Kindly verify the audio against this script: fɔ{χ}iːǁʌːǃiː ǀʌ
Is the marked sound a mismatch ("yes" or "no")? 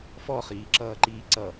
no